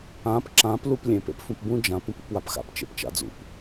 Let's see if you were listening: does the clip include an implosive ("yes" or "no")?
no